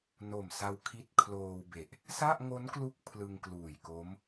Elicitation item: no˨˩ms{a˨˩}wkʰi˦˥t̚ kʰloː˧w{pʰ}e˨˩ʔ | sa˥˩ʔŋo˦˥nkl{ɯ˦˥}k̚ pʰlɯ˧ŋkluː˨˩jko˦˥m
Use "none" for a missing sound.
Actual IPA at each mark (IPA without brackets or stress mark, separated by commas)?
a˧, b, u˦˥